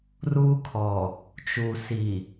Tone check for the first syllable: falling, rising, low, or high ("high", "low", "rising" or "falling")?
high